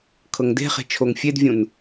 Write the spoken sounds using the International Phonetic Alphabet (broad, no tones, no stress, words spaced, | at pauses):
kʰɤŋde̤χe̤ t͡ʃʰoŋfʲedvʲũn